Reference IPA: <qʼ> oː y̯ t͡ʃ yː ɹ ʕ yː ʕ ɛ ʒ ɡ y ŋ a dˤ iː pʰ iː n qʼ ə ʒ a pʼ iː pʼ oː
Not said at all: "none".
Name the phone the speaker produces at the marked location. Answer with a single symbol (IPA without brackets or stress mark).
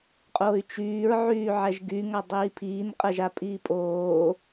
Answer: qʼ